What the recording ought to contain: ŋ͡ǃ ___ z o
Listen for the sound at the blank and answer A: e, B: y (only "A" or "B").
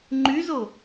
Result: B